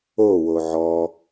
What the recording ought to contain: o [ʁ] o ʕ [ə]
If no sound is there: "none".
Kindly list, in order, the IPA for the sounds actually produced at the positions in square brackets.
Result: w, ɔ

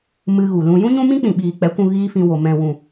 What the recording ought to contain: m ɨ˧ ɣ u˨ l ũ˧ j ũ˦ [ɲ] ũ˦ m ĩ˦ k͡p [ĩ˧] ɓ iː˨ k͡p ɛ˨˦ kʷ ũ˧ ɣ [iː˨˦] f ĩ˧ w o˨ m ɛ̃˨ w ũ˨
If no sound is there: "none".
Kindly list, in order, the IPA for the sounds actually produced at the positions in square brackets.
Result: ɲ, ĩ˨, iː˦

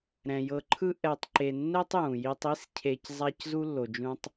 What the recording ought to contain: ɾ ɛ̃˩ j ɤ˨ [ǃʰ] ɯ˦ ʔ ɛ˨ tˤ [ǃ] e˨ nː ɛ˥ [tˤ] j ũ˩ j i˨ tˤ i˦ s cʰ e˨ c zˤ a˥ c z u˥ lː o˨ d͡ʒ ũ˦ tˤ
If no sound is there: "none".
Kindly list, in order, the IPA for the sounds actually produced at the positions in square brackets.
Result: ǃʰ, ǃ, tˤ

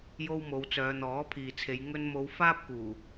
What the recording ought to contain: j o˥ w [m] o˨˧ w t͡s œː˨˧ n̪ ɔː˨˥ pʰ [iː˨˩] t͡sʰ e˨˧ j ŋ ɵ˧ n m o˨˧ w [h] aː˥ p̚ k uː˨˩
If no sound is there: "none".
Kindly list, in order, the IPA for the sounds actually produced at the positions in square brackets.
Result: m, iː˨, f

